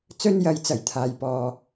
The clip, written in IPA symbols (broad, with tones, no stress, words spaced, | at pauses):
t͡sɵ˥njɐ˨˧j t͡sɐ˨˩jt̪ʰaː˨jpɔː˨